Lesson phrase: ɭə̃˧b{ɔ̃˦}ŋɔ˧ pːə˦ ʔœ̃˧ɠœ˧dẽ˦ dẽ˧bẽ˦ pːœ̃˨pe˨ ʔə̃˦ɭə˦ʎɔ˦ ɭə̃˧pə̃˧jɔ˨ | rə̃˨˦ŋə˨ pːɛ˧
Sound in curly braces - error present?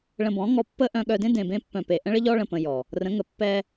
yes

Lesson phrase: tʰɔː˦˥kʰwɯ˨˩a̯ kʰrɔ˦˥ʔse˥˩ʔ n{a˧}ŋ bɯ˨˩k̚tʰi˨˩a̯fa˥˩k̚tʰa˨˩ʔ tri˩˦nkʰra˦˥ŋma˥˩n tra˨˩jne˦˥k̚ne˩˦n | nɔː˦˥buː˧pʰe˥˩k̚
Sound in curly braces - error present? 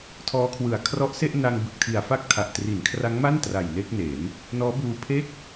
no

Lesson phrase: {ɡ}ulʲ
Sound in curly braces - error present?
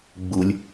yes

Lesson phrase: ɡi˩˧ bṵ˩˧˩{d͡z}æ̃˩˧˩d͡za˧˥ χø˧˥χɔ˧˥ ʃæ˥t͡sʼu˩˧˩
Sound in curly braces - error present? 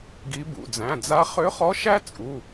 no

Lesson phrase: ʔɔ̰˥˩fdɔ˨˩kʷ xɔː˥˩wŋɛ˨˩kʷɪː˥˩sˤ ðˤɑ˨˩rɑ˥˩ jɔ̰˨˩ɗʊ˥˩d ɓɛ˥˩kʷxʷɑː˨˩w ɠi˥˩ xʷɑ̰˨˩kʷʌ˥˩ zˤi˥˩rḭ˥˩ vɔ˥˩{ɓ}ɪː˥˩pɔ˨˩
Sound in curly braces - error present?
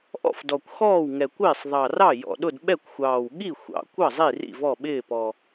no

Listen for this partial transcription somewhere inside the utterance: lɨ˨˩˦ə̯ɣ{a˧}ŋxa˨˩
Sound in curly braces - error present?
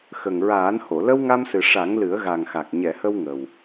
yes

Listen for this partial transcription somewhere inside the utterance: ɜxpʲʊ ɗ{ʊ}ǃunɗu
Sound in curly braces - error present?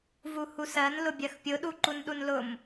yes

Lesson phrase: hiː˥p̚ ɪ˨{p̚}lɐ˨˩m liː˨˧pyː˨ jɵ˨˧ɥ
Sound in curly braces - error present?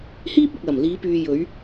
yes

